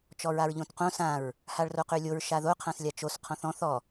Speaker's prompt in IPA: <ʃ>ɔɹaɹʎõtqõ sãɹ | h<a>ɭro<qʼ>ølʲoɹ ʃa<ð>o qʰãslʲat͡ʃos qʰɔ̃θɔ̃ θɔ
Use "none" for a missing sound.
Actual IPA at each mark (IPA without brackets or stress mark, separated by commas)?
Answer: t͡ʃ, a, q, ð